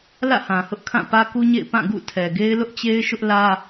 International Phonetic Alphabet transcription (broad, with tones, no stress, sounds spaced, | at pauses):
l ä̰˦˨ h ã˨ h ʊ˦ ʔ kʰ ã˦˨ p ä˦ k u˦ ɲ ḛ˦˨ ɪ̯ p ã˦˨ ɡ ṵ˦˨ tʰ ɛ˨ ɡ e˦ ɪ̯ l ʊ˦ ʔ t͡ɕ e˦ ɪ̯ ʃ ʊ˦ ʔ l ä˦